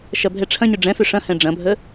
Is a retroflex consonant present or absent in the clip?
present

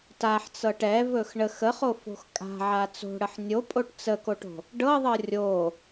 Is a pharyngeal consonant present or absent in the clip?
present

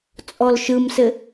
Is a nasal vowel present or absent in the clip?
absent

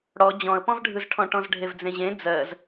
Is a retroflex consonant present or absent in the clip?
present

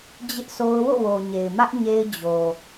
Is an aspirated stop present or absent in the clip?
absent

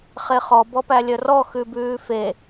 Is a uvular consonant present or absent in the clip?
present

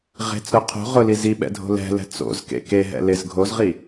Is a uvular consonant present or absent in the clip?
present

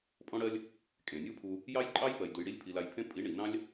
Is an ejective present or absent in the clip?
present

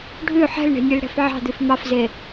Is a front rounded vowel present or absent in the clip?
present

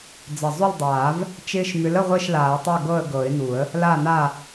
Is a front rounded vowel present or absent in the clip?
present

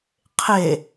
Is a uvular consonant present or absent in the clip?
present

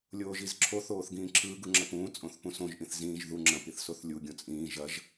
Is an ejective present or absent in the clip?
present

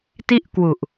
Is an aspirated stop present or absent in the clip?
absent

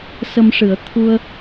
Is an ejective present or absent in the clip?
absent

